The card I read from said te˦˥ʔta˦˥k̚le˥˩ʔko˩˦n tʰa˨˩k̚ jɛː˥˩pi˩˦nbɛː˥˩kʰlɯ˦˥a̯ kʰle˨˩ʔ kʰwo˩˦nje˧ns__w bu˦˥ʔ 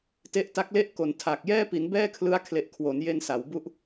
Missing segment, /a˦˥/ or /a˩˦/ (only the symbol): a˩˦